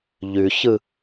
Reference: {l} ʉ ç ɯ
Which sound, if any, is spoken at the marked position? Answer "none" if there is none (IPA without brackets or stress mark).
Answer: ʎ